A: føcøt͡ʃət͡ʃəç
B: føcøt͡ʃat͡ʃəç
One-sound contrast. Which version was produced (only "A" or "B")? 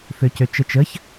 A